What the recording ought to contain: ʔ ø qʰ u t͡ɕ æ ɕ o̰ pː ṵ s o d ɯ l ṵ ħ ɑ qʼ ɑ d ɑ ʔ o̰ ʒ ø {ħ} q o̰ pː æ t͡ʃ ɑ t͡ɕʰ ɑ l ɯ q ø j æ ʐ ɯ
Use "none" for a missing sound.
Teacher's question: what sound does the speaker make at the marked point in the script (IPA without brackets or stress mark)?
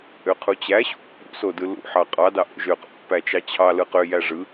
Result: none